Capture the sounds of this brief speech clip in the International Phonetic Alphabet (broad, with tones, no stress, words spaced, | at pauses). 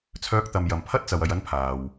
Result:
t͡sʰœː˧k̚t̪ɐ˨m jɐ˨m pʰɐ˥t̚t͡sɐ˨w ɐ˧jɐ˥n pʰaː˨w